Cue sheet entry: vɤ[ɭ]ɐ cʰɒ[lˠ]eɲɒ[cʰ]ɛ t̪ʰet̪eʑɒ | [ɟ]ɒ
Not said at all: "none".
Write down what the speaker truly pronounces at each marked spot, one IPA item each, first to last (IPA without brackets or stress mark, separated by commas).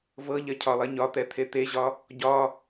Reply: ʎ, lˠ, t̪, ɟ